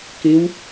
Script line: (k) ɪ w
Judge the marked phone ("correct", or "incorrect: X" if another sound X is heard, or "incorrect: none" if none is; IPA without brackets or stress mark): correct